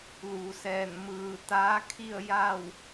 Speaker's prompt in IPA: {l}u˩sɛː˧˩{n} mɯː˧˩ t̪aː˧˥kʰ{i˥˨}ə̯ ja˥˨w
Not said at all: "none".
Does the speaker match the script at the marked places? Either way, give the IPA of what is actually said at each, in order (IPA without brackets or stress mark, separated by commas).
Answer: l, n, i˥˨